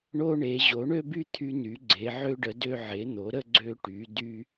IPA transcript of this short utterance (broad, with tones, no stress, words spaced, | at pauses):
ɳo˥ ɳe˩˥ ʑo˩˥ɳø˥by˥ t̪ʰy˥ny˩˥ɡ͡ǀe˩˥ ʕø˥ɖə˩˥ dø˥ ʕe˩˥n̪o˩˥ɾə˥ ɡ͡ǀø˥ʈy˩˥ dy˥